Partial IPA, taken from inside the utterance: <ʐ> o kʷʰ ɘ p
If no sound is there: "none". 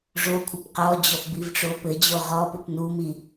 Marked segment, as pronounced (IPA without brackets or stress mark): ʐ